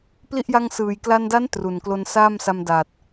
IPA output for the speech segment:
pli˥˩ʔ ja˧ŋsɯː˨˩jkla˧nda˦˥n tru˨˩nklo˧nsaː˥˩msa˧m da˨˩t̚

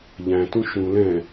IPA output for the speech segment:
ʎæ̃tũ ʃũ lɛ̃

